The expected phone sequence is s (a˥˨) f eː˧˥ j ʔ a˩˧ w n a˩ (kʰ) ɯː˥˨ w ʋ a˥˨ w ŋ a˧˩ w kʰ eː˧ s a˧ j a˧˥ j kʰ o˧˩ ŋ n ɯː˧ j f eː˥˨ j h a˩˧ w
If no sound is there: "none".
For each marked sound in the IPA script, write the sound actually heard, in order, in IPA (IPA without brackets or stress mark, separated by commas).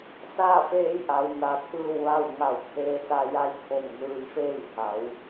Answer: a˥˨, t̪ʰ